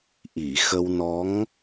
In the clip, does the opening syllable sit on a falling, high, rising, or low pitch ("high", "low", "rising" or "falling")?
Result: low